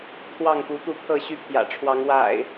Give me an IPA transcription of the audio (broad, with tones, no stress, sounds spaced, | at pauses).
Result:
t̪ʰ w ɑ˥˨ ŋ p u˨˦ t̪ u˥˨ t̪ʰ ɤ˥˨ ɕ y˥˨ pʰ j ä̰˨˩ ʈ͡ʂʰ w ɑ˨˦ ŋ w a̰˨˩ ɪ̯